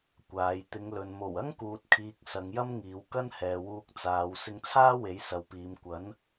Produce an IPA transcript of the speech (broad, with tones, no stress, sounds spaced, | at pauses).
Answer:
kʷ aː˨˧ j t̪ ɪ˨˧ ŋ l ɵ˨ n m o˨˩ w ɐ˥ ŋ k uː˨ t̚ kʰ iː˨ k̚ s ɐ˨˧ ŋ j ɐ˥ m ŋ iː˨˧ w k ɐ˥ n h ɛː˨ w uː˧ k̚ t͡s aː˨˧ w s ɪ˧ ŋ t͡sʰ aː˥ w e˨˥ j s ɐ˨ w p iː˨˧ m kʷ ɐ˨˥ n